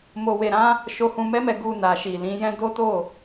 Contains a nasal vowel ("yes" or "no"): yes